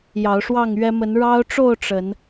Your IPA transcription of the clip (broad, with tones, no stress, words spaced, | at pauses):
jɑ˨˦ʊ̯ʂwɑ˥˨ŋɥɛ˦ mə˨˦n ɻɑ˦ʊ̯ʈ͡ʂo˥˨ʊ̯ ʈ͡ʂə˨˦n